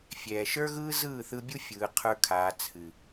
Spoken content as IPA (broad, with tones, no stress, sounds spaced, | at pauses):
fʲ ɛː˨ ʃ ə˞˦ ɣ ɯː˦ z ɯː˦˨ θ ɯ˧ bʲ u˦ fʲ ɯː˧ qʰ ə˞˦ kʰ aː˧ t͡sʰ ɨ˨